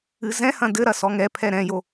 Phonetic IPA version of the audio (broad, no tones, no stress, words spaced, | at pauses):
ɨzɛ̃hɐ̃ dɘɾɐ sɔŋɛpʰɛ ɾɛ̃jo